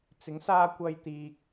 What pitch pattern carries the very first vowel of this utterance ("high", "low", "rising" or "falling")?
rising